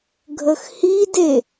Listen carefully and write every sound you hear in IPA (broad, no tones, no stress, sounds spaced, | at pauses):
ɡʱ ə x h i d e